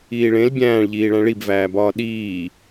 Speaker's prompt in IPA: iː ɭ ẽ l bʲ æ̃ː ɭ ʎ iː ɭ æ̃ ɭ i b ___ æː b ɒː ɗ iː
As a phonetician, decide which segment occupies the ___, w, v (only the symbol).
v